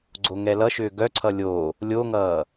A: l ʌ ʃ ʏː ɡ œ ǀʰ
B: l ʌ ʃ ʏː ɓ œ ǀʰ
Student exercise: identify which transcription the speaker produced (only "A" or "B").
A